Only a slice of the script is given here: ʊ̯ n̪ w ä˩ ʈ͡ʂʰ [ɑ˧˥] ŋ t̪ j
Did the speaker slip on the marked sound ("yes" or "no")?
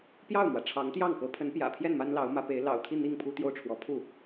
no